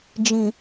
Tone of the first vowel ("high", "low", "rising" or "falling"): low